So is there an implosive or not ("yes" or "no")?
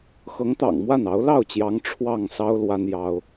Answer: no